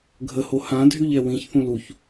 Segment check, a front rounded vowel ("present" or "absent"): present